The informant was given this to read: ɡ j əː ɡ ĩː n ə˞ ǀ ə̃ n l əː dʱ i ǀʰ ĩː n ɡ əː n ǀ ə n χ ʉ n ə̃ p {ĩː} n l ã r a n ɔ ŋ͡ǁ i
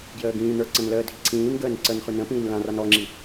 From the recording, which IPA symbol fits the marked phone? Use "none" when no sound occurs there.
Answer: ĩː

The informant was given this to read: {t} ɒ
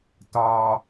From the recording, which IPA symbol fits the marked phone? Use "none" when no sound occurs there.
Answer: t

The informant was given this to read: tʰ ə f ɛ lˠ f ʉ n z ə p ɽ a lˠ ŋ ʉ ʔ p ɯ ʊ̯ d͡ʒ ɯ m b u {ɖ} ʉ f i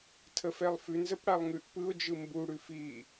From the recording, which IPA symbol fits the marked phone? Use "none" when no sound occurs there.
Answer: ɽ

